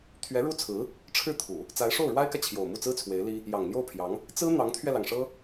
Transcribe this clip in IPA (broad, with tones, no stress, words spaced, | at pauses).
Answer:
t̪ʰɥɛ˧˥ ɻu˥ t͡sʰɹ̩˧˥ | ʈ͡ʂʰɻ̩˥˩t̪ʰu˨˩˦ | t͡sa˧˥ɪ̯ʂo˥˩ʊ̯ɻwa˥ɪ̯kä˨ t͡ɕʰjo˨˩ʊ̯mu˥˩t͡sɹ̩˥t͡sʰwe˧˥ɪ̯ li˥ | jɑ˨˩ŋ n̪jo˥˩ʊ̯pʰjɑ˧˥ŋ | t͡sɹ̩˥ n̪ɑ˧˥ŋt̪ʰɥɛ˧lɑ˩ŋʂɤ˥